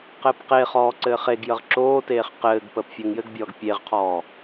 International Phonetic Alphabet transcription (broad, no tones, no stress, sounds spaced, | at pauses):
q ɘː p q e χ ɔː ǀ ɘː χ e ɡ j ə ʁ ǁ oː t eː χ q ɘː ɡ p əː p fʲ ɘː ŋ j ɘ ɡ bʲ ɔː ɡ pʲ e ʁ qʰ ɔː